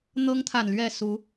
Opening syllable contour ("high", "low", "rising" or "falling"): high